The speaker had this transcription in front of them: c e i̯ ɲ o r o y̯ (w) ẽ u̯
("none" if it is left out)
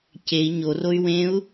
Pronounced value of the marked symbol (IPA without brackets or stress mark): w